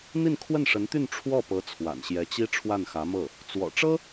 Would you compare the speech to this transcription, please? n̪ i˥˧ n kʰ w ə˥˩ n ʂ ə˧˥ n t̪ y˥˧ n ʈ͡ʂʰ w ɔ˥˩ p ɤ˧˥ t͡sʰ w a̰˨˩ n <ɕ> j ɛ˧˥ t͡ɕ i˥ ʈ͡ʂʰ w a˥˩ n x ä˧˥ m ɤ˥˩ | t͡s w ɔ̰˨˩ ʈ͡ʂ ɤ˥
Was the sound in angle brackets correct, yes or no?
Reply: yes